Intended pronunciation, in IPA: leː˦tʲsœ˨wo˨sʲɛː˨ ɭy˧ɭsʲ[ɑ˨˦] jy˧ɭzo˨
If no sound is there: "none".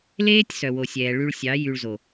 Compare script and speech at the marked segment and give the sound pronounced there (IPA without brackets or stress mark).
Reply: ɑ˨˦